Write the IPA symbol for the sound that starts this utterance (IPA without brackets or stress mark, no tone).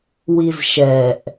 w